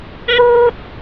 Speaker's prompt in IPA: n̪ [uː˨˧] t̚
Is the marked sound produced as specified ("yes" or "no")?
no